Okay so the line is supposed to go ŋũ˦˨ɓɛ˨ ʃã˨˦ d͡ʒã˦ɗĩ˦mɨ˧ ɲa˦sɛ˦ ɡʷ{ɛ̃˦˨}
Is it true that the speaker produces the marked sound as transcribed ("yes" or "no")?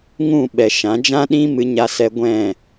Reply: yes